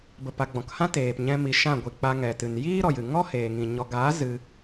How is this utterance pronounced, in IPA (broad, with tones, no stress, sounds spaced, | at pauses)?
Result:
b ə˨ p a˨ ɡ͡b ɔ̃˨ k h ã˦ t eː˨ p ɲ ɛ̃˧ m i˨ ʃ ã˦˨ ɡʷ i˨ k͡p a˧ ŋ ɛ˨ t ɨ˨ n j iː˦ ɾ ɔ˨ j ɨ˨ ŋ ɔ˦ h eː˨ ŋ ĩ˨ ɲ ɔ˨ ɡ aː˨˦ z ɨ˧